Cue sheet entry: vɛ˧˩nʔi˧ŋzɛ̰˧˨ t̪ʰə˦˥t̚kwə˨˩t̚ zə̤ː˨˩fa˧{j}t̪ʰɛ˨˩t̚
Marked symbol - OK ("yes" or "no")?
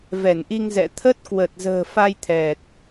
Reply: yes